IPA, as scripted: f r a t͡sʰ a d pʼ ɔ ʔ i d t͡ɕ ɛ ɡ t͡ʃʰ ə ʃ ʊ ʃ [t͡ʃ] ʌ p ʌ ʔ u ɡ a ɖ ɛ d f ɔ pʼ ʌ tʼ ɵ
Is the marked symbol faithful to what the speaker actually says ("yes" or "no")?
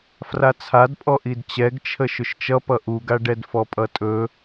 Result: yes